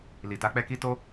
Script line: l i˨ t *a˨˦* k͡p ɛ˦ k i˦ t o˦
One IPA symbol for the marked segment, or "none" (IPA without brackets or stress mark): a˨˦